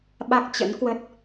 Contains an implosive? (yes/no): yes